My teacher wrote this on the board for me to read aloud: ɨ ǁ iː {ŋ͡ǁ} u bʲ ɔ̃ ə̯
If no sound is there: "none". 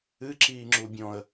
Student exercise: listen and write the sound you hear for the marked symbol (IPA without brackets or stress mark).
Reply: ŋ͡ǁ